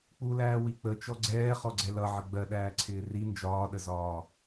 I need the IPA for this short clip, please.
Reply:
k͡p u l æː w i k͡p ə t͡ʃ ɔ ɡ͡ǀ ɛː χ ɔ ɡ͡ǀ ɛ l ʌ ʕ ə ɡ͡b ɜ ɗ æː ǀʰ ɪː r i n d͡ʒ ɒː ɗ ə z ɒː

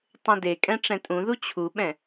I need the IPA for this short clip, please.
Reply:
tˤ ẽ d e kʼ ɛ̃ ʈ͡ʂ ɛ̃ tʼ ũ ð u t͡ɕʰ u ɓ ɛ̃

